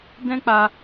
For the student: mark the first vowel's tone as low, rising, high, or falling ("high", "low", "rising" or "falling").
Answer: high